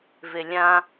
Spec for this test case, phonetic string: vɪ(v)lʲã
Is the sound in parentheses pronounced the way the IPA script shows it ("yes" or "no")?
no